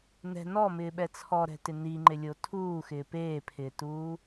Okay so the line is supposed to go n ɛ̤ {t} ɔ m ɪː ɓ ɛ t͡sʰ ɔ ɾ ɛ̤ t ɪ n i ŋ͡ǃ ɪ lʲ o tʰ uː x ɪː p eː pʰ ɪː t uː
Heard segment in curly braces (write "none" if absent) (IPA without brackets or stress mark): n